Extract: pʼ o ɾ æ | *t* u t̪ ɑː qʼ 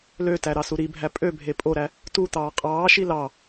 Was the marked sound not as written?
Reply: no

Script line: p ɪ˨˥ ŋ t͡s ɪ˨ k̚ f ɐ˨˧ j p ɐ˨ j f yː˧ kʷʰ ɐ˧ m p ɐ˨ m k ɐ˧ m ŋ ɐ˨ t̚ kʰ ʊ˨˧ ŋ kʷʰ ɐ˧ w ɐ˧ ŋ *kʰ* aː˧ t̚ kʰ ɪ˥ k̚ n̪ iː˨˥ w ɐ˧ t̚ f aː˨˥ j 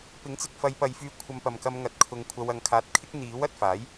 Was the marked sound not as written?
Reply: no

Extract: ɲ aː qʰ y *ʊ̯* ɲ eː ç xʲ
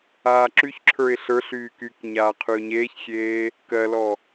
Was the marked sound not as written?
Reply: no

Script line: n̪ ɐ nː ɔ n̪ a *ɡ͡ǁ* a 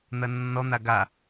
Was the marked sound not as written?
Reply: yes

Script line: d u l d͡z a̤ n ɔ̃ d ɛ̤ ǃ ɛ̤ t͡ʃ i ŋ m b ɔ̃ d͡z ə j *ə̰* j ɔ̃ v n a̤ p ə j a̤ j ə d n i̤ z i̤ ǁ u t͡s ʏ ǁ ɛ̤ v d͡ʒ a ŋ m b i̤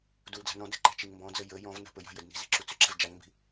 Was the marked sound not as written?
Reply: yes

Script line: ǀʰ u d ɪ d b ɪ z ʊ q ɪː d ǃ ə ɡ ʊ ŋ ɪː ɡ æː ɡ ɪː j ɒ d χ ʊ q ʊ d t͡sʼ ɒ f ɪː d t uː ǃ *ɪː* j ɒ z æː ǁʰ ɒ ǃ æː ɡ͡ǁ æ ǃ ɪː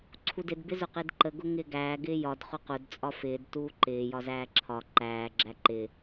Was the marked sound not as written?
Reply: no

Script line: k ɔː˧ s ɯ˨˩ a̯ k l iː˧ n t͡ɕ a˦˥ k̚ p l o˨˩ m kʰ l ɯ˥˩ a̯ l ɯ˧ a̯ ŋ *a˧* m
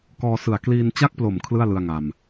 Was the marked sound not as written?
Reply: no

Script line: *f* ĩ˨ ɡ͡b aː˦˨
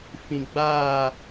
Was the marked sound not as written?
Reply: no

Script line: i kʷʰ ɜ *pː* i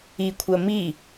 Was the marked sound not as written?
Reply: yes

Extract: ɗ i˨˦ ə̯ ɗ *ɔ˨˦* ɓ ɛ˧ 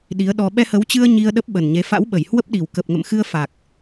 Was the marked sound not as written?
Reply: yes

